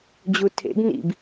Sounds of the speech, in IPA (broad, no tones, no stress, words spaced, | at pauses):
d͡ʑutʰḛɡ nḭb